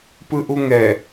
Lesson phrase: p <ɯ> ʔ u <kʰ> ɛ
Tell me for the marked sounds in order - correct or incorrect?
correct, incorrect: ŋ

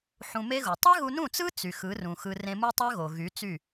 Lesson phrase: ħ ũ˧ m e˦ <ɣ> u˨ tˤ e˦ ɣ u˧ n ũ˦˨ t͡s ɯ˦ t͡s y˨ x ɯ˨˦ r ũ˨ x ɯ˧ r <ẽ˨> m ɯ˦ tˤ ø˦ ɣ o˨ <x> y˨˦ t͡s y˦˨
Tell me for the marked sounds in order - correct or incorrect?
correct, incorrect: ẽ˧, incorrect: ɣ

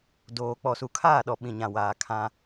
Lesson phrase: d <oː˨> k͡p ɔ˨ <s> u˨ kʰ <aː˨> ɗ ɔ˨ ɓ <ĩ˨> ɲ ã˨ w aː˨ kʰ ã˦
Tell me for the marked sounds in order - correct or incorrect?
correct, correct, incorrect: aː˦˨, correct

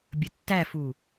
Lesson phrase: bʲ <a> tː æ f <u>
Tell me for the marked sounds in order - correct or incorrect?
incorrect: ə, correct

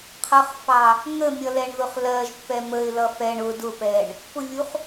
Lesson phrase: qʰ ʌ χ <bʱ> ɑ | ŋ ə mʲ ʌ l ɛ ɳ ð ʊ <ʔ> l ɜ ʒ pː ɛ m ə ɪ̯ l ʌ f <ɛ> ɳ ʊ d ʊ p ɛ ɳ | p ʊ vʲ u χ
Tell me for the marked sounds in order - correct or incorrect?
incorrect: f, incorrect: χ, correct

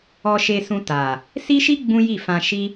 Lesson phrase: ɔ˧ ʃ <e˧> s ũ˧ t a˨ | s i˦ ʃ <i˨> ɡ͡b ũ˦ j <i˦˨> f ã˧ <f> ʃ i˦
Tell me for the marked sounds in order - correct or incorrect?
correct, incorrect: i˦, correct, incorrect: none

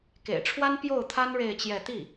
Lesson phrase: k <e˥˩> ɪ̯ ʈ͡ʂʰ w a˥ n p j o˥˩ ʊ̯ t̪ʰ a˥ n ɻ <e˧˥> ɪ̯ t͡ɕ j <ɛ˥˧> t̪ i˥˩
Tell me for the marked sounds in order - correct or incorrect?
incorrect: ḛ˨˩, incorrect: e˥˧, correct

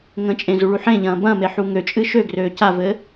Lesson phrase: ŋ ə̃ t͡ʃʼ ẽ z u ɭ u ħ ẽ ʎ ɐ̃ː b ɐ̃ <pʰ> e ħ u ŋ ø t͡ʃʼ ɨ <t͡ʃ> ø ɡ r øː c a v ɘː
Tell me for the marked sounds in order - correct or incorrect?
incorrect: m, incorrect: ʃ

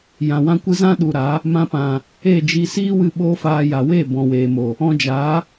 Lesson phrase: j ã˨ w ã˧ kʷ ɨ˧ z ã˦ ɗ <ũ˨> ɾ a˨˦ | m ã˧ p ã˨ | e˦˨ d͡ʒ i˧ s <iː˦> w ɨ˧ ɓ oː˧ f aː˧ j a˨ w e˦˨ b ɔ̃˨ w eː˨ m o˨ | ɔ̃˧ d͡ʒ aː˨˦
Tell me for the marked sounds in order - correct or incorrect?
incorrect: u˨, correct

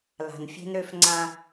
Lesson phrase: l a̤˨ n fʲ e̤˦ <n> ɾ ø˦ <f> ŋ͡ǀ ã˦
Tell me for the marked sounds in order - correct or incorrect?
correct, correct

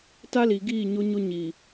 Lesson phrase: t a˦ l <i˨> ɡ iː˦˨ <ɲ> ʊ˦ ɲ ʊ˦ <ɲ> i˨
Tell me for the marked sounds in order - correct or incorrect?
correct, correct, correct

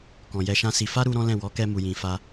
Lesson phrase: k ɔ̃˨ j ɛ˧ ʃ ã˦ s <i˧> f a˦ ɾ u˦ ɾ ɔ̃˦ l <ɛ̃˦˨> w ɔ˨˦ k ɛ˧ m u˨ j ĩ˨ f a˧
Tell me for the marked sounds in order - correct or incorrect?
correct, correct

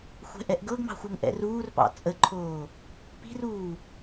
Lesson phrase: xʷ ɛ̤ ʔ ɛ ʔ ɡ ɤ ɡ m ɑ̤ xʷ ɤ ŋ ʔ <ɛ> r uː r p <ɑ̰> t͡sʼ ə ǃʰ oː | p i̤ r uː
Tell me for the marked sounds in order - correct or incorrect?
incorrect: ɛ̰, correct

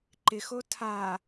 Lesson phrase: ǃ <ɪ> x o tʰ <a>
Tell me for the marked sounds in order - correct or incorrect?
correct, correct

